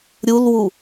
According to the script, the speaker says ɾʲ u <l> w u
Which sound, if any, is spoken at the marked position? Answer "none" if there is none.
l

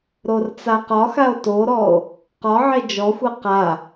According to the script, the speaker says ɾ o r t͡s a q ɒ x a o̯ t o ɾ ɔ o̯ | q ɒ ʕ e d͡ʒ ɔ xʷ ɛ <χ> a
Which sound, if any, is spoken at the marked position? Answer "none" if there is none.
q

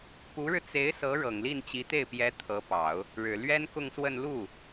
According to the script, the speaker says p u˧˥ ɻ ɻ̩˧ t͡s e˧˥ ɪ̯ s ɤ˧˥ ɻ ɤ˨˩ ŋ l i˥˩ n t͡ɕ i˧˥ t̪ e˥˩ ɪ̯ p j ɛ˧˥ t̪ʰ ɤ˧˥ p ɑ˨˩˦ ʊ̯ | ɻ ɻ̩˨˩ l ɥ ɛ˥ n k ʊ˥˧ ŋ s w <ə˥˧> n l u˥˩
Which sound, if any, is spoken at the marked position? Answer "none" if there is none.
ə˥˧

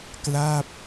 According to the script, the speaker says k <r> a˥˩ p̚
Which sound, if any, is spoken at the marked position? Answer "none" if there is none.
l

